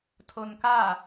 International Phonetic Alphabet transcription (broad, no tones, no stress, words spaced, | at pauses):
tʰonka